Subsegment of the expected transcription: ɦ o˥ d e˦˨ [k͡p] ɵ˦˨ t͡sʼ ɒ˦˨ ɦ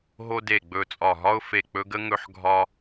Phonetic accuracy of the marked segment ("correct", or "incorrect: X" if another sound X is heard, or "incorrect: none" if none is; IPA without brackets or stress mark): incorrect: ɡ͡b